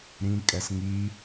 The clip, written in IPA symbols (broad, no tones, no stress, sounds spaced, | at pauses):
ɾ ĩ kʼ ɛ s ŋ i